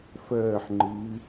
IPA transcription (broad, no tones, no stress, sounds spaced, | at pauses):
f ɜː ħ ŋ͡ǃ ɨː